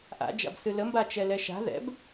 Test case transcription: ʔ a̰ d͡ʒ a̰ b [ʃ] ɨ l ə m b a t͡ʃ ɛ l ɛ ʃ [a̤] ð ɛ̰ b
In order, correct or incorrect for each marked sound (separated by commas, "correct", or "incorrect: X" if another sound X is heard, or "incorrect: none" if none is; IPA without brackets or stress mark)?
incorrect: s, correct